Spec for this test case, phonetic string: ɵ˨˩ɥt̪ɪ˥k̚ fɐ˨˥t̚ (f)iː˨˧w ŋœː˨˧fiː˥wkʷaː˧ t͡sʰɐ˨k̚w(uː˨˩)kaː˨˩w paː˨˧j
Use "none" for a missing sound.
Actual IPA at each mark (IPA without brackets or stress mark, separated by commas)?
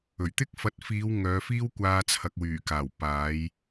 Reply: f, yː˨˩